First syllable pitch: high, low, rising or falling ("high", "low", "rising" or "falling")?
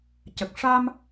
low